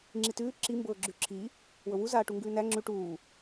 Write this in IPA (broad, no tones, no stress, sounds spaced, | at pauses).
ŋ͡ǁ i t ʉː ǁ i m b ɤː ɡ͡ǁ ʉ ǁʰ i | w ɤ w u z aː ʈ u ŋ ɡ ʉː n æ ŋ͡ǁ ʉ ʈ uː